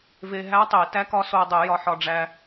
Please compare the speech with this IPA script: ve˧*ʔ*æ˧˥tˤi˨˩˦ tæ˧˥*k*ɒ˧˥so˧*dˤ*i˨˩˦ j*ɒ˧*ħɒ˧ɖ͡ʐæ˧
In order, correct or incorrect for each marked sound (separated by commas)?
incorrect, correct, correct, correct